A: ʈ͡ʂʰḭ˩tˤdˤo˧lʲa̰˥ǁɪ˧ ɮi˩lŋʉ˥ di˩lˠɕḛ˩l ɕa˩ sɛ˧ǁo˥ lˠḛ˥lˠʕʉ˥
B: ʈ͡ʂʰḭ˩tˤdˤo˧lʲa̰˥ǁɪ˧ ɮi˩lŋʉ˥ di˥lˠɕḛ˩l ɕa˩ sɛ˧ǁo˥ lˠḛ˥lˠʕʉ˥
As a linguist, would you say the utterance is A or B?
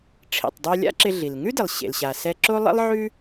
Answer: A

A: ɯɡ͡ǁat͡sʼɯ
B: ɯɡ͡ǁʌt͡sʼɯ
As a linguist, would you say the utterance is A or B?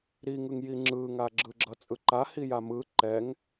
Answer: B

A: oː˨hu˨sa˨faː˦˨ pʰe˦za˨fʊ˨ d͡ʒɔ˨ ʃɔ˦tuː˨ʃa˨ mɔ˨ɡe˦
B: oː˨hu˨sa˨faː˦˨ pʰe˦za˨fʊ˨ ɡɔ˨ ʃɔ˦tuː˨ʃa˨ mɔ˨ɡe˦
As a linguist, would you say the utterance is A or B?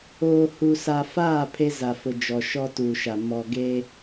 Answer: A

